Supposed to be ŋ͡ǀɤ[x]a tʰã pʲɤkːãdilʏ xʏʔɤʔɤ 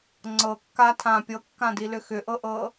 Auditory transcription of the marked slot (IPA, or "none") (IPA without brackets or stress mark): kː